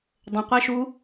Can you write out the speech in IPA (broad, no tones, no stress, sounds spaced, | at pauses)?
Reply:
dˤ ə̃ qʷ ɛ ʃ u